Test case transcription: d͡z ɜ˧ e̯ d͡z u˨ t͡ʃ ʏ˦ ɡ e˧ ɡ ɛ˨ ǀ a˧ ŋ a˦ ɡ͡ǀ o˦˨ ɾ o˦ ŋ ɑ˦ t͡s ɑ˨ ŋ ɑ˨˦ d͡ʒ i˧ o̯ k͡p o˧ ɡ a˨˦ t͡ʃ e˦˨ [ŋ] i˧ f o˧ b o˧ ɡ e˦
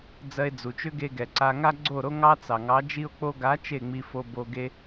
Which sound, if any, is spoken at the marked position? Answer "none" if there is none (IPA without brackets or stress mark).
ŋ͡m